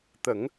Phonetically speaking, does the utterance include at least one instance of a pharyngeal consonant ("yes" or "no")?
no